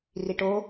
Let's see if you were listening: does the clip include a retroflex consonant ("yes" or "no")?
yes